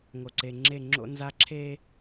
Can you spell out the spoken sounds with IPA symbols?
ŋ o˨ ǀ e˨ ŋ͡ǁ e˦˨ ŋ͡ǁ o̰˦ n z a˦ ǁʰ eː˦

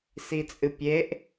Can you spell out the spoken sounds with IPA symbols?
s i t͡sʼ ɨ pʲ e ʔ

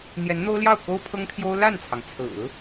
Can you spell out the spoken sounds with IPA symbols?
n̪ j ɛ˧˥ n n̪ o˥ ʊ̯ l j ɑ˥˩ ʊ̯ k o˥ ʊ̯ pʰ ɤ˥ ŋ t̪ʰ j o˥ ʊ̯ l a˥˩ n t͡sʰ ɑ˩ ŋ t͡sʰ ɹ̩˨˩˦

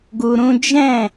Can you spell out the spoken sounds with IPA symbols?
ɡ u˧ ɾ ũ˦ d͡ʒ ɛ̃˦˨

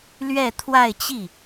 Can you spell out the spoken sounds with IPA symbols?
l ɥ ɛ˥˧ t̪ʰ w a˥˧ ɪ̯ t͡ɕ i˥˩

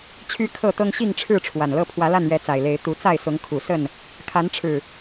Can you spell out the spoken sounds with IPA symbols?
t͡ɕʰ y˦ kʰ ɤ˥˨ t̪ ɤ˦ ŋ ɕ i˥˨ ŋ ʈ͡ʂʰ ɻ̩˥˨ ʈ͡ʂʰ w a˨˩ n l ɤ˦ pʰ w ä˨˦ l a˥˨ n ɥ ɛ˨˦ t͡s a˨˩ ɪ̯ l e˨˦ ɪ̯ t̪ u˨˦ t͡s a˥˨ ɪ̯ s ʊ˨˦ ŋ kʰ u˨˩ s ə˥˨ n | kʰ a˨˦ n ʈ͡ʂʰ ɻ̩˨˩

